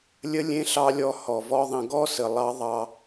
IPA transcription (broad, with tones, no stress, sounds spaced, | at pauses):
lʲ ə˧ lʲ ẽ˧ ɬ ɑ˧ lʲ ɔ˨˦ h ɔ˨ v ɔ˦ ðˤ ə̃˧ ɡ ɔ˦ s ə˨ lˠ ɑ˦ ðˤ ɑ˧